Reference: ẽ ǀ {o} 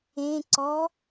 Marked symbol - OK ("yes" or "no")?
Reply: no